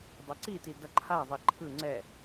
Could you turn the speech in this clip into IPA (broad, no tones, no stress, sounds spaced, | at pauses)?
dˤ ʌ ǀ i t i d ʌ ǃʰ a ðˤ i ǃʰ ɯ ŋ͡ǀ ɛ